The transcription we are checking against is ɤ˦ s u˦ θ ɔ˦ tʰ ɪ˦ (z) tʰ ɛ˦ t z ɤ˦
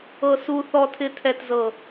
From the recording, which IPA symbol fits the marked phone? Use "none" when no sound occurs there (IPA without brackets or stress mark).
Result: none